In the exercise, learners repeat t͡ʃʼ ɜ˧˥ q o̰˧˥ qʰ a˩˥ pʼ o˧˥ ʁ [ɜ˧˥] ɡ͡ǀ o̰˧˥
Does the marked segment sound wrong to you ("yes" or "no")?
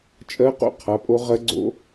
no